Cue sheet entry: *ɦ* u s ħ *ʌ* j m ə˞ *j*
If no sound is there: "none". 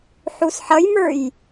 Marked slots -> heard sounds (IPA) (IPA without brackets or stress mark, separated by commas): ħ, ʌ, j